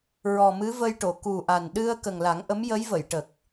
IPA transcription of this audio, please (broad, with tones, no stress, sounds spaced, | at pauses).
ɹ ɔ˨˩ m ɨ˧˥ v ə˧ j ʈ o˨˩˨ k u˨˩ ʔ a˨˩ n ɗ ɨ˧ ə̯ k ə˨˩ ŋ l a˨˩˦ ŋ ʔ ə˧˥ m j ə˧˥ j v ə˨˩˨ j ʈ ə˨˩ k̚